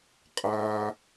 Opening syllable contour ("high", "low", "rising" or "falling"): high